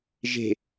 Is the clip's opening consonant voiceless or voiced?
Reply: voiced